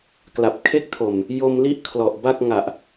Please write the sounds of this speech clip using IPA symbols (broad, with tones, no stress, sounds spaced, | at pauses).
k l a˨˩ p̚ kʰ e˥˩ k̚ tʰ o˨˩ m | j o˧ m l i˦˥ ʔ kʰ l ɔ˨˩ ʔ b a˥˩ k̚ ŋ a˨˩ ʔ